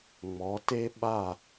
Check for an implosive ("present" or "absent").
present